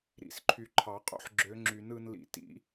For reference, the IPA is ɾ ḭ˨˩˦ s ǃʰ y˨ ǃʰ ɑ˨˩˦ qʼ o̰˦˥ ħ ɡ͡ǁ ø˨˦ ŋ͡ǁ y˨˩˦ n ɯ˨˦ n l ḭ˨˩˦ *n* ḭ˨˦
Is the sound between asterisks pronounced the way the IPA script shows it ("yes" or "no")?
no